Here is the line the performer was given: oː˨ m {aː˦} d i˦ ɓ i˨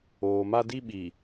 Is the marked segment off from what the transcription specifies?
yes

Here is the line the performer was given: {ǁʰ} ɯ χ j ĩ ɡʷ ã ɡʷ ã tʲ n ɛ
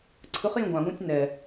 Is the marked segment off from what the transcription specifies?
yes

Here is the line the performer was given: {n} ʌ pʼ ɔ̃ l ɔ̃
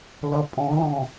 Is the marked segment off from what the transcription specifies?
yes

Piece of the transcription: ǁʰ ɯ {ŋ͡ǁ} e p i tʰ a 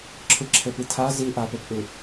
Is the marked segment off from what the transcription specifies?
yes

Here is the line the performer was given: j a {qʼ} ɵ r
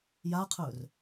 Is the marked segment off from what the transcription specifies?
yes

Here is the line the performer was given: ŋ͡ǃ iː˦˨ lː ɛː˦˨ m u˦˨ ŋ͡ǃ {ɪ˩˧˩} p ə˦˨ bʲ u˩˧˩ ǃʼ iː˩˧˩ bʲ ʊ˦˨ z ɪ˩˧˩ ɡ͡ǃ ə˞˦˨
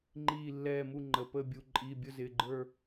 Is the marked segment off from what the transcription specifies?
yes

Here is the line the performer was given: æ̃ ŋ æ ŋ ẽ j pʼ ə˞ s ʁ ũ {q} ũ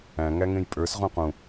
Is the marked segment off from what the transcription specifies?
no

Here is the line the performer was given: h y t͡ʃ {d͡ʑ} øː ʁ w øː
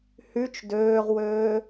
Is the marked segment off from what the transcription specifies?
yes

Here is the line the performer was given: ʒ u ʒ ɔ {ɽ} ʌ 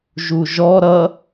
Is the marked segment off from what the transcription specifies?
yes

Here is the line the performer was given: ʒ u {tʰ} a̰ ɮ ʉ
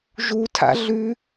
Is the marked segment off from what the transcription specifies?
no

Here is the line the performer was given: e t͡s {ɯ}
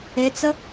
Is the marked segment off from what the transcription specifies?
yes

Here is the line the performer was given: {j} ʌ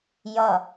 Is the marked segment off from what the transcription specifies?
no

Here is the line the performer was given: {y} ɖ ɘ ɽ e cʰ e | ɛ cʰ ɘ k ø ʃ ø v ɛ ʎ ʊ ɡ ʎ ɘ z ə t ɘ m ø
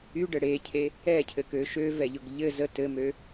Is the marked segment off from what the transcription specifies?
no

